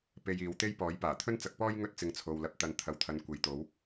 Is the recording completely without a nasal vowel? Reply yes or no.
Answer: yes